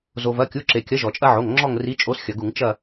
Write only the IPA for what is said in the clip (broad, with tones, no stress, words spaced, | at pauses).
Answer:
zo˩vɐ˩˧˩kʲu˩˧˩ǁe˩ kʲɐ˨˥ʒɔ˩t͡ʃʼɐ˦ʕo˩˧˩ŋ ŋ͡ǁɔ˦˨ŋri˨˥ t͡ʃʼo˨˥sxʲɐ˩ɡu˧˩˧ŋ t͡ʃɐ˦˨